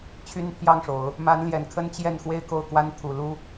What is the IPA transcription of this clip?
t͡ɕʰy˥npʰjɑ˥˩ŋʂo˨˩˦ʊ̯ | ma˧˥nljɛ˨˩nkʰə˥n t͡ɕjɛ˥˧n xwe˥˧ɪ̯ko˥˩ʊ̯kwa˥nt̪ʰu˨˩ lu˥

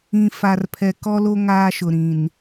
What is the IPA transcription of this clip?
ĩ˨ fa˨rpʰɛ˨ kɔ˦lo˦ ŋaː˦ʃʊ˨ ɾĩ˨n

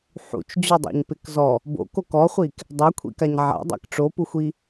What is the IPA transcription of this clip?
ħṵt͡ʃd͡ʑodˤa̰ɲpɪk zɔ | bo̰kok ɔχʷik | dˤakʷʰḭkaɲ ʕa̰dˤa̰k ʈ͡ʂopuxʷi

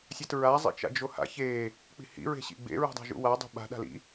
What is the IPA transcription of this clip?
sʲatɹa zˤḭt͡ʃa̰d͡ʒoha̰ çe | k͡pi̤hḭ ɹe̤ɕḭɡ͡bḛ ɹṳdˤa̤ʒṵwa dˤṳɓa̤ ɗa̤lḭ

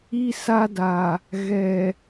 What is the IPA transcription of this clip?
i˦sa˦da˨ | ɣɛ˨

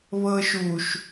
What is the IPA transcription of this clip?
βɤʃuʃ

